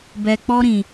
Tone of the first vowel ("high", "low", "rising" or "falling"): low